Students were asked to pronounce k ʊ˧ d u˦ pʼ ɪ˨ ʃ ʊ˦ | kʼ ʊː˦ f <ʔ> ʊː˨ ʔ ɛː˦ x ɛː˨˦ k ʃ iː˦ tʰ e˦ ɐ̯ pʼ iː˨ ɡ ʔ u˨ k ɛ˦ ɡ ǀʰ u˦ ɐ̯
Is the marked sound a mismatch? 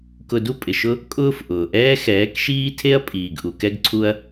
no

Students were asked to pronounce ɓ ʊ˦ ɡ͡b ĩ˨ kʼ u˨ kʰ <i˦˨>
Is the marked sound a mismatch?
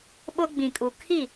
no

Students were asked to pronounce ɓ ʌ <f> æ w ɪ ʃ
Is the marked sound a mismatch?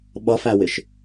no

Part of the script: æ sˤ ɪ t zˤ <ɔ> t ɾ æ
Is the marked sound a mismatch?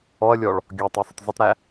yes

